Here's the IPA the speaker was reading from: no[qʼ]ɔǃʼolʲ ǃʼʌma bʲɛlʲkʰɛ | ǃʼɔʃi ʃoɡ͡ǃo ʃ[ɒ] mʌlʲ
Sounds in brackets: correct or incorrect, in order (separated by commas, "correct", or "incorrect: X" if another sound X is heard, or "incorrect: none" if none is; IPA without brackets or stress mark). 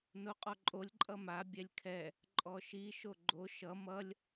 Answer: correct, incorrect: ʌ